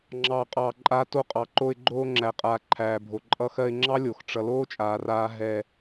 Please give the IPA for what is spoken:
ŋ͡ǁɑː˧qʼɑː˧ǃʼaː˦ to˧qʼɑ˨ ǃo˧ɪ̯ɡ͡ǃoː˧ ŋ͡ǁæ˨qʼaː˨ǃʰæː˨bʱo˨ ǃʼʌ˧xɜ˧ɪ̯ŋ͡ǁɑ˦lʲo˨x ʈ͡ʂʌ˧ loː˦t͡ʃʼaː˨raː˧ ɦɛ˧

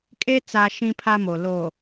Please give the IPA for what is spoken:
kʼe˦ t͡sa˦ʃĩ˦pʰa˦ mo˨lo˨

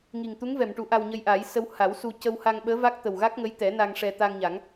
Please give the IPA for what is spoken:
ŋi˨˩ŋt̪u˧˥ŋvɛ˨˩˨mʈu˨˩˦ ʔa˧wɲə˧jʔaː˨˩˦j sə˧w ha˨˩˦w su˧ cə˧wha˧ŋɓəː˧˥va˦˥k̚ t̪ə˨˩wɣa˦˥k̚ŋə˧˥jt̪ɛ˨˩˦ na˧ŋʂɛ˧ t̪a˧ŋɲa˨˩˦ŋ

